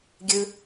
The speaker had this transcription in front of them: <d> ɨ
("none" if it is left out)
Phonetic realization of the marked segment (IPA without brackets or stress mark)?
ɡʲ